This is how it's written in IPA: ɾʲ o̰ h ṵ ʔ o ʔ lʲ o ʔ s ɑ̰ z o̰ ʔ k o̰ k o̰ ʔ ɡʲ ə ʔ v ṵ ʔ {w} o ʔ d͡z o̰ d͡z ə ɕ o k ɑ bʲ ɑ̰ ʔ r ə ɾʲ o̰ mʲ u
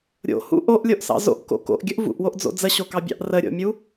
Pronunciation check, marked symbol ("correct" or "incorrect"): correct